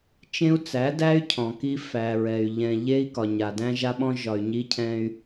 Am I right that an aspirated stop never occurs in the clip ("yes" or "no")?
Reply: no